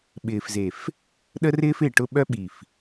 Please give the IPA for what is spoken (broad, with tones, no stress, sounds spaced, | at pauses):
ɓ ɪː˨ f z e˨ f | ɗ ə˦ r ɪː˦ f ɪː˨ ʈ ʊ˦ ɓ œ˦ ɓ i˨ f